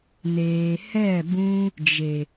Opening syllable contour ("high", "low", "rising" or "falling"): low